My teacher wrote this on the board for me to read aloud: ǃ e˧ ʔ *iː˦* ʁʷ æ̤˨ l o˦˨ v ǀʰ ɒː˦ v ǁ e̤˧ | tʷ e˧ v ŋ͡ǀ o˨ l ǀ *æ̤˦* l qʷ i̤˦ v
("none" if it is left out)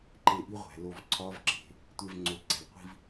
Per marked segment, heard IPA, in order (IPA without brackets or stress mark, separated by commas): i˦, æ̤˨